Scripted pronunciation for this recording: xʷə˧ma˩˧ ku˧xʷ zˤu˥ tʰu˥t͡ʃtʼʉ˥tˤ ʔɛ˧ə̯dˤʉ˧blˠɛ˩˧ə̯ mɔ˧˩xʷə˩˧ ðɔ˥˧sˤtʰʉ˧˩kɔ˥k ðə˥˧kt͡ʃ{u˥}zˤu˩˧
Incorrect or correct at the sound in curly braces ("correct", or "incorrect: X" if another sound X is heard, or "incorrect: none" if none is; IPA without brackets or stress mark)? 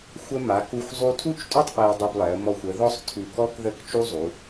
correct